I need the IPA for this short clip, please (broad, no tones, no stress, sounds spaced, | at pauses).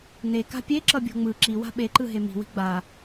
n e k a̤ pʲ e ǁ ʌ bʲ o̤ ŋ͡m ɯ ǁ i w a̤ ɓ e ǃ ɯ ɦ e m i̤ w i̤ ɡ͡b a